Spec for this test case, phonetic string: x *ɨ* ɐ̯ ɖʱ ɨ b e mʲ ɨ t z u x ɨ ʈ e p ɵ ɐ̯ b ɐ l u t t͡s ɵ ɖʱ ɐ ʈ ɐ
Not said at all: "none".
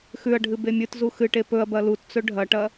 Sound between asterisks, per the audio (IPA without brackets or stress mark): ʉ